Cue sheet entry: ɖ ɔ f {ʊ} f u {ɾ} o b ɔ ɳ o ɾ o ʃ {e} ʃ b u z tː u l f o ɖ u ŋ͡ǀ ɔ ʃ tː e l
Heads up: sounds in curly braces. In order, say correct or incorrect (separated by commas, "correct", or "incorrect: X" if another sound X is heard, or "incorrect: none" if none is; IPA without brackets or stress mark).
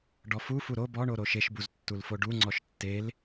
incorrect: u, correct, correct